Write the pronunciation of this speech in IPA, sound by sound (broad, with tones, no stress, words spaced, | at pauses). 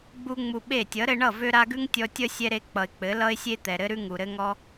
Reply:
ɡ͡bu˦ŋ͡mu˧ɓe˦˨ tʲʌ˨˦ɾɘ˧ɳʌ˦˨ vø˧ɾa˧ɡʉ˦ŋ tʲɔ˧tʲʌ˦sʲɛ˧ɾe˧ k͡pʌ˨ɪ̯k͡pɘ˨˦lʌ˦ɪ̯sʲe˦ t̪ɛ˨ɾɘ˦ɾʉ˦ ŋu˨ɾɘ˧ŋɔ˧